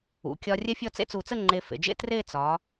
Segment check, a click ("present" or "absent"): present